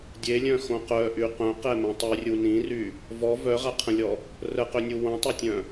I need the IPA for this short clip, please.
dʲ e lʲ œ̃ x õ q œ ʔ y q œ̃ q ɛ m œ̃ tˤ y rʲ u n ĩ r y | v ɔ v œ ʁ a qʰ ə̃ lʲ ɔ | r ə q ø nʲ u w õ tˤ o tʲ œ̃

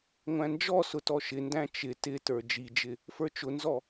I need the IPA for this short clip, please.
ŋʷ æ̃ n d͡ʒ ɔ s ʊ t ɔ ʃ ɪ n d æ̃ t͡ʃ ɪ t ɪ t ə˞ d͡ʒ i d͡ʒ ɪ | f ə˞ t͡ʃ ʊ n z ɔ

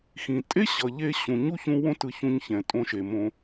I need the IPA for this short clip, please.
x ĩ˨ tʼ e˦ ɕ ʌ˨ ʎ e˧ ɕ ũ˨ ɲ u˦ ç ũ˧ w õ˦ t ɯ˧ ç ũ˧ ɲ ç ɛ̃˨ tʼ õ˧ ʃ e˨ m õ˧

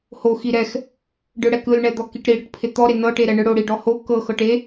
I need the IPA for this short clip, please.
h o x i ɾ ɛ x | ɖ ɯ ɽ ɛ k ɯ l ɳ ɛ d̪ ɔ k i ʈ ɾ i ɽ ɯ ʈ pʰ e t̪ ɔ ɾ e n ɤ ʈ e ɾ ɛ ɳ ɯ ɽ o ɽ i ɖ ɔ h o k ɤ x ɤ ʈ e

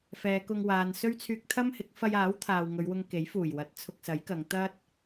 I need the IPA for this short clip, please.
f ɛː˨˧ k ʊ˧ ŋ w aː˨ n s ɵ˥ ɥ t͡sʰ yː˧ k̚ t̪ʰ ɐ˥ m h ɪ˨˥ k̚ f ɐ˧ j aː˨˥ w t̪ʰ aː˨ w ŋ ɵ˨˧ ɥ w ʊ˧ ŋ k e˨˥ j f uː˨˩ j w ɐ˨˥ t̚ t͡sʰ ʊ˧ k̚ s ɐ˨˥ j k ɐ˨˧ ŋ t̪ ɐ˥ t̚

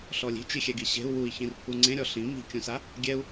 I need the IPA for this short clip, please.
ɬ ɔ lʲ i̤ t͡ʃ i xʲ ɛ ɡ i ɕ e̤ u̯ w u i̯ ç ĩ r pʰ u ŋ͡ǀ ẽ ɾʲ ɔ ɬ ĩ m i̤ kʲ ũ s a | ɡʲ ɛ u̯

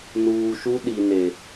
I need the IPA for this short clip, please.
n uː˨ ʃ u˦ ɗ i˨ n e˨

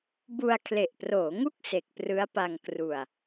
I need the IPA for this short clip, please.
b u˧ a̯ kʰ l e˨˩ ʔ p r oː˩˦ ŋ u˥˩ k̚ s e˨˩ k̚ p r ɯ˦˥ a̯ p a˧ ŋ k r u˧ a̯

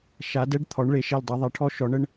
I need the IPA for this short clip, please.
ʃ a˩˧ d ɛ˦ ɖ t̪ʰ ɔ˩˧ ɳ ɭ e˩˧ ʃ ɛ˧˩ l dˤ ɛ˩˧ ðˤ ɛ˩˧ ʈʰ ɔ˦ ʃ ɔ˩˧ ɳ ə˦ ɳ

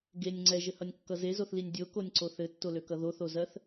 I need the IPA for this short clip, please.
ɡ e nʲ ŋ͡ǀ ɛ ʒ ɘ h ʌ nʲ kː ʌ z e z o θ l i nʲ dʲ o k o nʲ ǀ o θ ɘ tː o l ø k ʌ ð o θ o z ɜ θ

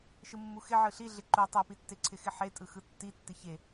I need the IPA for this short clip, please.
ʃ ɯ mː u x ɪ ʕ ɯ ɬ i ɮ ɪ ǃ u tˤ ɯ p i tː e ǀʰ ɪ x ɪ ħ e tʼ ɯ x ɯ tː i tː ɪ ç e

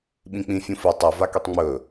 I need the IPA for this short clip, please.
ɓ ĩ k͡p ĩ fʲ ũ f i tˤ ɵ v a k i tˤ ŋ͡m ɵ

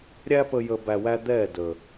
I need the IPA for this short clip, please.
ɾʲ æ˧ p ə˨ j ə˨ b æ˨ w æ˧ d̪ ɛ˦˨ d ə˨

